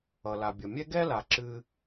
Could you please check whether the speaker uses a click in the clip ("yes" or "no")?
yes